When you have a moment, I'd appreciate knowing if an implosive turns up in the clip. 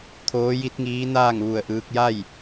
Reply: no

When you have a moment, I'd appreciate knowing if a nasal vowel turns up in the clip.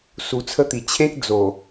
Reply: yes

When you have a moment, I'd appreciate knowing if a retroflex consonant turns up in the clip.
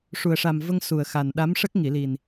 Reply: yes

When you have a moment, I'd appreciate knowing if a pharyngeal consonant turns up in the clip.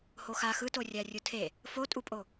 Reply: no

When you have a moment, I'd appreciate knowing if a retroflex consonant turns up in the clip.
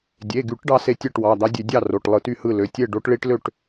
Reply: yes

